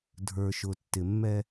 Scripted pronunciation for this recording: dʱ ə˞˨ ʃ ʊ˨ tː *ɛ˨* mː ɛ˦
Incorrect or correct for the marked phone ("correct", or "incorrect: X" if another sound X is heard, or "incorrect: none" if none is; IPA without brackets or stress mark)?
incorrect: ɪ˨